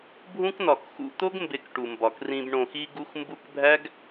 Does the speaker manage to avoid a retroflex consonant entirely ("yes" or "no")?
no